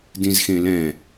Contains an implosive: no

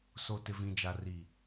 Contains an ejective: no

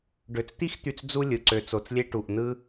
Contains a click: yes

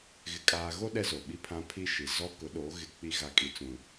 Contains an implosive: yes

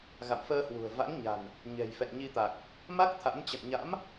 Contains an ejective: no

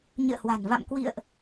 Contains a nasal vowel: no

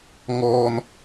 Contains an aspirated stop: no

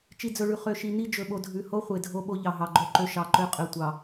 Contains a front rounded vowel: yes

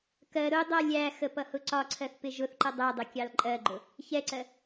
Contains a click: yes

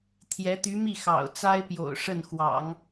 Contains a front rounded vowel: yes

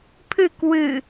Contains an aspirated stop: yes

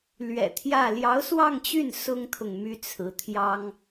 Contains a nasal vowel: no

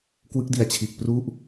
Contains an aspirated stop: yes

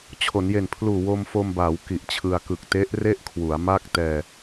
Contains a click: no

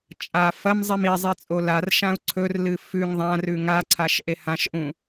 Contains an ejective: yes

